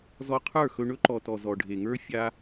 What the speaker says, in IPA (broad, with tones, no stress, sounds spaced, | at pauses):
z ɔ˧ qʰ ə˞˦˨ x ɵ˧ ɳ ɵ˦ ǃ ɔ˨ t ɔ˨ z ɔ˨ ɖʱ e˨ ŋ ə˞˦ fʲ a˦